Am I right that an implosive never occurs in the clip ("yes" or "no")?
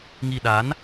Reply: no